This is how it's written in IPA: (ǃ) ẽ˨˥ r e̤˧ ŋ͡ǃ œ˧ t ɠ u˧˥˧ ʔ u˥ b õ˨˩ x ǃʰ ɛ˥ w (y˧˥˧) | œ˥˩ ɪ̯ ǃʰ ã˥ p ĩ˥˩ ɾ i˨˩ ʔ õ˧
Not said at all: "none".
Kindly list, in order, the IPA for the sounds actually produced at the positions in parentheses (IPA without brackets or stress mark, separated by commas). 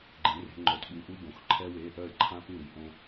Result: ɡ͡ǃ, e˧˥˧